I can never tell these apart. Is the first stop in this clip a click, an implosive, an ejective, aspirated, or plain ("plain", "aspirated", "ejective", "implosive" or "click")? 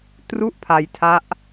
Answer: plain